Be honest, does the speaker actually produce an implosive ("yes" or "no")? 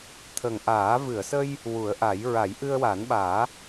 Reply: yes